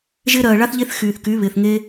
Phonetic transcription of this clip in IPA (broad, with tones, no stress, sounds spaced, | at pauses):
ʒ ɪː˥ ɾ ɜː˧ ɭ a˥ θ ʎ e˥ θ x yː˧ θ k y˧˥ β ɪː˧ θ ŋ e˥